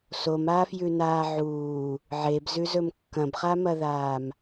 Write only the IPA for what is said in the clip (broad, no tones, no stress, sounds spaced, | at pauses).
s o m aː f j ʉ n aː ʕ uː | ʕ e b z ʉ z ɵ m kː ɐ̃ b χ a m ɐ ð aː m